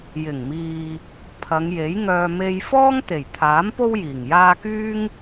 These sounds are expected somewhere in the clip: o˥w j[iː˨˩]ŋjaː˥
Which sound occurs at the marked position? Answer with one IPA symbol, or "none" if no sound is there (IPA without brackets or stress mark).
iː˨˩